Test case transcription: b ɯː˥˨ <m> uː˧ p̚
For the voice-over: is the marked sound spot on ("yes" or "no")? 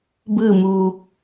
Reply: yes